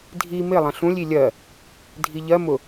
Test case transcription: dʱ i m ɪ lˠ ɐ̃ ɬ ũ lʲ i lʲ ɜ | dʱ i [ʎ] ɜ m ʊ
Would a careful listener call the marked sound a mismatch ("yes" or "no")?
no